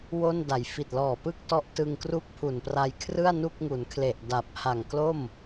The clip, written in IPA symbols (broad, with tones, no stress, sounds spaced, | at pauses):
w o˥˩ n d a˩˦ j f i˨˩ t̚ l ɔː˨˩ p ɯ˥˩ k̚ t ɔ˦˥ ʔ t ɯ˧ ŋ k r u˥˩ k̚ pʰ u˨˩ n p r a˧ j kʰ r ɯ˥˩ a̯ n u˥˩ k̚ ŋ u˩˦ n kʰ l e˨˩ ʔ d a˨˩ p̚ h a˨˩ ŋ k l o˥˩ m